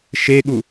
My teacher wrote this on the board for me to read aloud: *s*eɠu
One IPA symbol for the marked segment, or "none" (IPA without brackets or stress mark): ʃ